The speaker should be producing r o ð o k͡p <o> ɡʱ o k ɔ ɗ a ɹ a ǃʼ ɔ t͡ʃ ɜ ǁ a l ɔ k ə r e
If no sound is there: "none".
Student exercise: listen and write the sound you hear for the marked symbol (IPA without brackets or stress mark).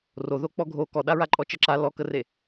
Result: ɔ